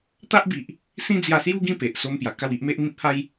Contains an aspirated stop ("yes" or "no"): no